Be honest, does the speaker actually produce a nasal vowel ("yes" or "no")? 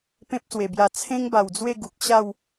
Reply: yes